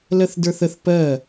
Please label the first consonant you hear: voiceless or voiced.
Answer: voiced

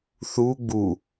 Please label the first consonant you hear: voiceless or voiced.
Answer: voiceless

